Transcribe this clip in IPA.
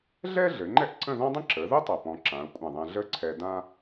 ɮɛ˥ ɮɘ˩˧ŋ͡ǃɛ˥˧ʔ ǀə̃˥˧ðɔ̃˥dˤə̃˥ ǁə˩˧ðə˥ tˤæ˧˩ pɔ̃˧ ǁã˩˧ʊ̯kʷʼã˧˩ðˤɛ̃˧ ɮə˥ǀʰɛ˧ dã˥

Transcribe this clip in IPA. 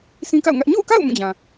sĩ˦ka̰˦˨ʊ̯ŋä˦ʔ ɲo̰˦˨ʊ̯ka̰˦˨ʊ̯ mũ˦˨d͡ʑã˨

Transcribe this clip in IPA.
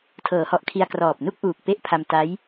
tʰɤː˩˦hɔ˨˩ʔkʰi˧a̯ krɔː˨˩p̚nu˥˩k̚ʔuː˨˩k̚ pe˦˥ʔpʰa˧mta˦˥j

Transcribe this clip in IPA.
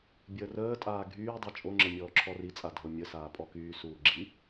bʲəːrəːtʼaː ɡʱyːdˤi t͡ʃʼoŋ͡ǁə mʲɔːǁʰɔrit͡sʼa dʱomʲəsaː pʼɔkyːsuː ɡ͡ǁi

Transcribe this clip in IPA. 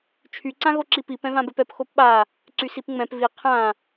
t͡ʃʰy ǀãɣoǁipi pɛ̃vãbɛpɛp xopɓa | ǀysipŋ͡mɛ̃p vi qʰã

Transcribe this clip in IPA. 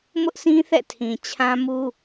mʊ˦ʔsʰĩ˦θɛ̰˦˨tʰĩ˨ t͡ɕʰã˦mu˦

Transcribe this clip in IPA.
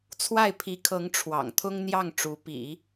t͡sʰwa˥˩ɪ̯pʰi˧˥kʰɤ˧˥ŋ ʈ͡ʂʰwɑ̰˨˩ŋt̪ʰʊ˥ŋn̪jɑ˥˩ŋ ʈ͡ʂu˧˥ pḭ˨˩˦

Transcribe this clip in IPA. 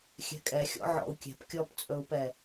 xʲɛ̤kʼɛxʲɔ̰ ʕɔ̰u̯kʲɛ̤p kʲɔpt͡sʼɵu̯pɛ

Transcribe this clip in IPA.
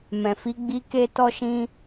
mɛ̃˨fi˨˦ɡ͡bi˧ ke˧tɔ˧ʃĩ˧

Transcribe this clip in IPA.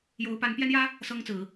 jo˧˥ʊ̯pa˧˥npjɛ˥njä˥ | sɤ˥ŋt͡sɹ̩˨˩˦

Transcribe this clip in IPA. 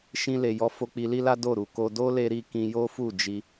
ʃĩ˧ le˨jɔ˨˦ fo˧k͡pi˧li˦la˦ do˦˨ ɾu˨ko˧ do˦le˧ɾi˧ kĩ˧jo˦fu˦˨ d͡ʒi˧

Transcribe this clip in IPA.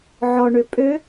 ʕɔɳø pʼø

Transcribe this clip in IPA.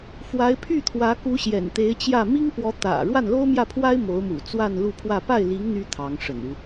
fwa˧˥ɪ̯pʰy˥˩ t̪ʰwä˧˥ku˧˥ ɕjɛ̰˨˩nt̪e˧˥ɪ̯t͡ɕjä˥˩ mi˥ŋpwɔ˧˥ t̪ä̰˨˩ ɻwa˥˩nlo˥ʊ̯mjä˥˩pʰwa˥ɪ̯ mo˧˥ʊ̯mṵ˨˩ t͡swa˥˧nlu˥˧pʰwä˥˧ pa˥˩ɪ̯li˧˥ŋ n̪y˥ t̪ʰɑ˧˥ŋʂə̰˨˩nu˦

